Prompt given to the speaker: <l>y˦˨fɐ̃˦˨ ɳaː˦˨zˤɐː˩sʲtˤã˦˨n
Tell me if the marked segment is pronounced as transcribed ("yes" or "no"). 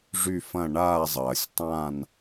no